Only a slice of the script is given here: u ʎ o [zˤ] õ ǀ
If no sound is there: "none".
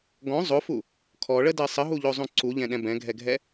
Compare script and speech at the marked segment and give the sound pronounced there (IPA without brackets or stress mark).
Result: zˤ